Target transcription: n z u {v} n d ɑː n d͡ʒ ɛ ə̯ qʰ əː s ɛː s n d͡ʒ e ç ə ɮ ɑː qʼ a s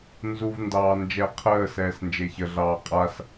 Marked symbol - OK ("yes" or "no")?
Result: yes